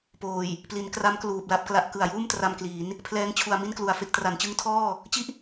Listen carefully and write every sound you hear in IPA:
poː˨˩j | pli˩˦nkra˦˥m kluː˨˩p̚la˥˩p̚kla˦˥ʔ kɯ˨˩a̯juː˥˩mtra˧mkliː˩˦n | pʰlɛː˦˥ŋt͡ɕʰu˨˩a̯ mi˥˩nklu˨˩a̯fe˥˩k̚ tra˩˦nt͡ɕɯ˦˥ŋtʰɔː˥˩ | t͡ɕi˥˩ʔ

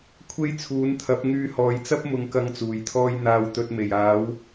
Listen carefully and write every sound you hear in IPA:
kʷʰe˥jt͡sʰuː˨˥nt̪ʰɐ˨˥p̚ ŋyː˧hɔː˨jt͡sɐ˥p̚ mʊ˧ŋkɐ˧ŋt͡suː˨˩jt̪ʰɔː˧j n̪aː˨wt̪ɵ˨t̚ me˨˩jaː˨˥w

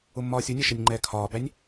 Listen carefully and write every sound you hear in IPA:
ʊmːɒːsʲunʲɛ ʃɛnʲŋ͡ǃɛːkʰɒːbænʲ

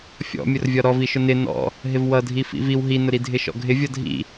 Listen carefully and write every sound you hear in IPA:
fʲɔ̰mʲʊrvʲɒ ɾɔviʃʊ nɪ nɔ̰ | ɦɪvwʌdʱi fḭviw ɦinʊɾidʱɪ ʃɔ̰ɡʱɪ vʲʌdʱḭ

